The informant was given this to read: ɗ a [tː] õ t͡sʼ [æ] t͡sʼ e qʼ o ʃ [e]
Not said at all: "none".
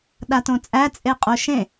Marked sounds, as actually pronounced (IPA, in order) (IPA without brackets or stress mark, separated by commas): t, æ, ẽ